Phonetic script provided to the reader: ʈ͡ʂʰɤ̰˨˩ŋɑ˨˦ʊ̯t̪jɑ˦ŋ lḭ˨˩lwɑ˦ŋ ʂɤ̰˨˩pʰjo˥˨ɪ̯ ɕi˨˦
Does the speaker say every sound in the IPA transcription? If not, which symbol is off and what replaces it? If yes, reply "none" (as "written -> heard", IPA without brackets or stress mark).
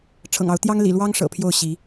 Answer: ɪ̯ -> ʊ̯